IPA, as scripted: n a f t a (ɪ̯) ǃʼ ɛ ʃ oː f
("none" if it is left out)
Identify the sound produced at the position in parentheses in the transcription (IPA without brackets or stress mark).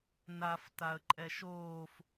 ə̯